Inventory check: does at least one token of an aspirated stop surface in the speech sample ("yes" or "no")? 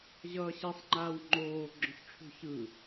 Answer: yes